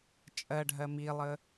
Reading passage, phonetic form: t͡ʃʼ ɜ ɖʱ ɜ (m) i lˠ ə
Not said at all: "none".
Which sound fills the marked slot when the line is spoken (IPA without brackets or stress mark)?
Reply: m